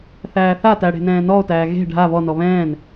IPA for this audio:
θæːθatæ ɽe̤nɛ̃ːnɔo̯tæː ɣe̤ ɖʱa βɔnɔ βɛ̃ːn

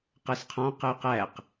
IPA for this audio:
qɜsqʰɔ̃ qəy̯qæq

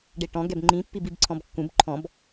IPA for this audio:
ɖeʈɔ̃ ɡɛbŋ͡ǃĩ pːibibǀʰɔ̃bkːũb ǃʰɔ̃b

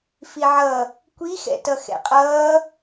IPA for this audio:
fiʕʌ | kʷixɛ̰tʌ xɛ̰qʼʌː

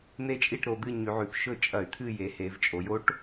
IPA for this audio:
n̪e˦˨t͡ʃʼi˦˨ʈɾo˩˧ d̪ɨ˦˨ɲʉ˩˧ʕʉ˩˧p ʃɵ˦˨t͡ʃʼɐ˧˩˧y̯t̪ʰɨ˦˨je˩˧ he˩˧vt͡ʃʼo˩˧jo˦˥ʈ

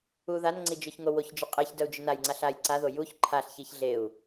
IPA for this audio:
uðanŋ͡ǀi d͡ʒœçŋowoçd͡ʒʏ qʼeç dœu̯d͡ʒʏnajŋ͡ǀaɬ aj ǀaðo juç ǃʰaɬçiç ɮeu̯

